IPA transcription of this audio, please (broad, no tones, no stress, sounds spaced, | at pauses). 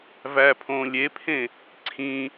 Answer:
v æ pʰ õː lʲ e pʰ ẽ | ǀʰ ĩ